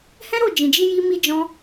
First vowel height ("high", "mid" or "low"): mid